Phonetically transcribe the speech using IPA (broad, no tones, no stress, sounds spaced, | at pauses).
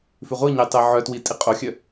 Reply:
f ʉ ʁʷ i ɲ e tˤ e ʕ œ t w i tʼ i qʼ o xʲ œ